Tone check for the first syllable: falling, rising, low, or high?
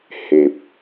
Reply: low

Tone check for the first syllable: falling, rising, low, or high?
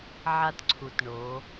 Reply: falling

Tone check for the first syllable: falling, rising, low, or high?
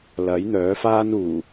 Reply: rising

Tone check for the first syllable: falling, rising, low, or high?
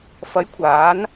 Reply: rising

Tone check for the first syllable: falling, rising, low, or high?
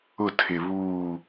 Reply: falling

